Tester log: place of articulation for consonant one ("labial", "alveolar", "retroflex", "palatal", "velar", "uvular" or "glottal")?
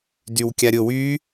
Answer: alveolar